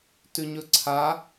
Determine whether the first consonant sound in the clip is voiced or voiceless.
voiceless